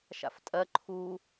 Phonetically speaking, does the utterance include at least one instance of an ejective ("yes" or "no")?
yes